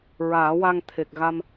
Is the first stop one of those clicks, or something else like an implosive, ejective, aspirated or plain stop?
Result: aspirated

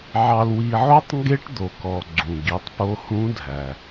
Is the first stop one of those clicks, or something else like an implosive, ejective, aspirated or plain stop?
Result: plain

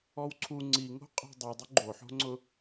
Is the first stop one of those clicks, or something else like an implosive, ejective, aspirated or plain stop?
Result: click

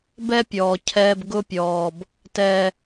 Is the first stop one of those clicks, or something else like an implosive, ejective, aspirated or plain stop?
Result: plain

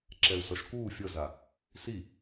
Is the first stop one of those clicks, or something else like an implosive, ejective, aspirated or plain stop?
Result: click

